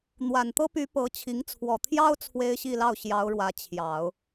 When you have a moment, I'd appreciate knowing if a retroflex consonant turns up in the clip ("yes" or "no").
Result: yes